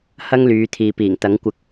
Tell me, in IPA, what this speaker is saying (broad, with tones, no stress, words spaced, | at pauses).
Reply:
hɐ˥ŋlyː˨˧t̪ʰiː˨piː˨˩ŋ t̪ɐ˨˥ŋkʷɪ˧k̚